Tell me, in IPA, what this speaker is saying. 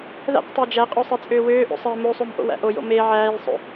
ð æ̰ q tˤ æ d͡ʒ æ qʼ o sˤ e t͡sʼ øː w øː ʔ o̰ sˤ e m o sˤ o m ʔ o̰ w æ̰ ʔ o j o̰ m e ʕ æː j sˤ o̰

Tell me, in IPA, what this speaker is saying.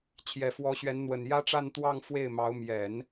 t͡ɕʰ j ɛ˨˩ f w ɔ˧˥ ɕ ɥ ɛ˧˥ n n̪ w ə˨˩ n j ä˥ ʈ͡ʂ a˥˧ n t̪ w ɑ˥˧ ŋ f w e˥˩ ɪ̯ m ɑ˧˥ ʊ̯ m j ɛ˨˩˦ n

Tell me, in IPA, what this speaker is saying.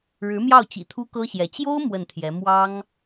ɻ ɻ̩˧˥ m j ɑ˥˩ ʊ̯ t͡ɕ ḭ˨˩ t̪ʰ u˥ k ɤ˥ ɕ j ɛ˧˥ t͡ɕ j o˥ ʊ̯ m w ə˥˩ n t̪ʰ j ɛ˧˥ m w ɑ˥ ŋ

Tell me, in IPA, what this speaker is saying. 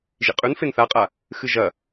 ʒ ḭ qʼ ʉ n f e n θ a qʼ a | x ɨ ʒ ɐ

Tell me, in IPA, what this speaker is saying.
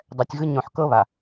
dˤ ɛ˨ tʲ ɣ ɯ˦ ɲ õ˨ ħ k ɤ˦ β a˨

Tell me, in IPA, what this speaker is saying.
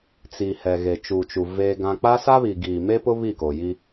t͡s i˨ h ɛ˨ ɣ e˨ t͡ʃ u˨ t͡ʃ u˨ v eː˦ ɡ ã˦ k͡p a˦ s a˦ β i˨ ɡ iː˨ m e˦ p ʊ˦ β i˦˨ k o˨ j i˦

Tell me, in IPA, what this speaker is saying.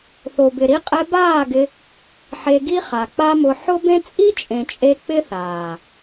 θ o˨ b ɪ˨ ɾ i˧ qʼ ɛ˧ b aː˦˨ ɡ ɪ˧ | ħ e˧ ɡ i˦ χ a˨ k͡p a˦ m ʊ˧ ħ ʊ˦ b ẽ˦ t͡sʼ i˦ t͡ʃʼ ẽ˨ t͡ʃʼ e˧ k͡p ɪ˦ θ aː˨

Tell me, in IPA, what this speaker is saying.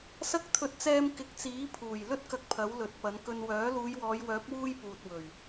s ɐ˥ k̚ t̪ʰ ɵ˧ t̚ t͡s ɛː˧ m k ɪ˨˥ k̚ t͡s iː˨˥ pʰ uː˨˩ j l ɵ˥ t̚ k ɐ˧ k̚ pʰ ɐ˨˥ w l ɵ˨˥ t̚ p ɐ˨˥ n k ɵ˧ n w œː˨˥ l uː˨˧ j w ɔː˨˧ j w œː˨˥ p̚ w uː˥ j p uː˨ t̚ w ɵ˨˩ ɥ

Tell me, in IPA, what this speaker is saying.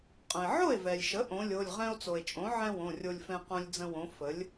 qʼ ə̃˩ e̯ ʕ o˥˩ e̯ v ɛ˩ lʲ ʃ ə˩˥ ʔ õ˩˥ lʲ o˩˧˩ lʲ ʁ ɛ̃˧ o̯ t͡s o˩ e̯ t͡ʃʼ õ˩˥ ʕ ɛ̃˥ w õ˩˧˩ rʲ o˧ lʲ f ɛ̃˧ q õ˧ lʲ d͡z ə̃˧ w õ˩˥ f ə˩˥ lʲ

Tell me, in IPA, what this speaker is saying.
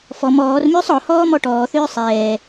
f ɔ m ɔː r m ʏː sˤ ɔ h ɔː m ɔ ʈ ɔː θ ʏː sˤ ɛː

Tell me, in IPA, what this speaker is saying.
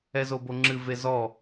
ɛ z o b o ŋ͡ǁ ɨ v e z ɔ

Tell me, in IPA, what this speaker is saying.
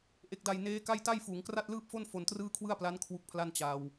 ʔ e˨˩ k̚ d a˨˩ j n eː˦˥ k a˥˩ j t a˥˩ j f uː˩˦ ŋ k r a˥˩ t̚ l ɯː˥˩ p̚ f o˥˩ n f o˧ n t r ɯː˥˩ kʰ w ɯ˥˩ a̯ p l a˦˥ n kʰ w u˦˥ k̚ pʰ l a˥˩ n t͡ɕ a˧ w

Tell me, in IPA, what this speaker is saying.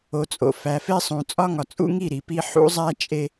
o˨ t͡sʼ o̰˨ f æ˨ f e˦ sˤ ũ˨ t͡sʼ ɒ˦ ŋ ɒ˨ t͡sʼ ṵ˦ ŋ i˦˨ ɾ i˨ p i˦ ħ ṵ˦ zˤ æ˦ t͡ʃʼ e˦

